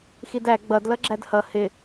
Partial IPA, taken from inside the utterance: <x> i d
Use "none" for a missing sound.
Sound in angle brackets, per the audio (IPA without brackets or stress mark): x